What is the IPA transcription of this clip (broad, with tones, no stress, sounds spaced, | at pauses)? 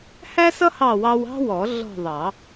h æ˥ s ʌ˥ h ɑ˦˨ w ɑ˥ w ɑ̤˥ w ɔ˨˩˦ ɮ ɔ̤˦˨ ðˤ ɑ˨˩˦